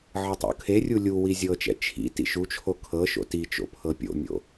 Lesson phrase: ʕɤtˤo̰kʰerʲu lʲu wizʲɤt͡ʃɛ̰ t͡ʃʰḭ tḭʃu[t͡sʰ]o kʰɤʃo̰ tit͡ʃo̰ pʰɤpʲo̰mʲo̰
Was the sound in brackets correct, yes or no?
no